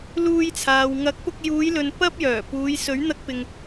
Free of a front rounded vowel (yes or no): no